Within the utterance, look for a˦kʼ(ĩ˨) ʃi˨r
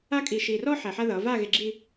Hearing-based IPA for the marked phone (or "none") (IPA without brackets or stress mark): i˨